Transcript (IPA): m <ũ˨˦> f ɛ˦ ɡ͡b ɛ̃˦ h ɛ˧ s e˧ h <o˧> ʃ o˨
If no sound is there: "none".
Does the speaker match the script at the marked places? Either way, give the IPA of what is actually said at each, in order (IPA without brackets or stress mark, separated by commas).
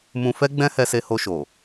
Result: ũ˧, o˧